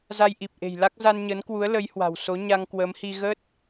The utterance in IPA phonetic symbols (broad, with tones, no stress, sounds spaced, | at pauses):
z a˧ j ʔ i˨˩ p̚ ʔ e̤˨˩ j l a˦˥ k̚ z a˧ n ɲ əː˨˦ n k w u˨˦ ə̯ l ə˨˦ j h w a̤˨˩ w s o˨˦ ɲ a˧ ŋ k w əː˨˦ m h i˧ ɣ ə˦˥ t̚